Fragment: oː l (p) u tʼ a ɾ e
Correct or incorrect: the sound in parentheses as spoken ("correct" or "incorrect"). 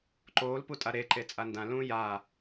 correct